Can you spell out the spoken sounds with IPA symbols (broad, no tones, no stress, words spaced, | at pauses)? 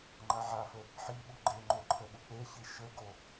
ŋ͡ǃaʕafə | ħiɓu ɡ͡ǃeŋ͡ǃo ǃʰəɓuk͡peçi ʃəɡo